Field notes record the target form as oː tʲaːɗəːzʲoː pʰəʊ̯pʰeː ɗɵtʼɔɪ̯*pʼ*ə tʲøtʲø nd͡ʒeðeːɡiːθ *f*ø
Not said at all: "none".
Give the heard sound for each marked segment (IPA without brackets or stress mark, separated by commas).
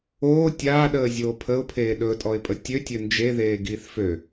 pʼ, f